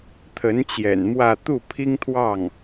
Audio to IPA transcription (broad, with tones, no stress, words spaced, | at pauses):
t̪ʰə˧˥n t͡ɕjɛ̰˨˩nmwä˥˧ t̪u˥˩pʰi˥ŋt̪ʰwɑ˥˩ŋ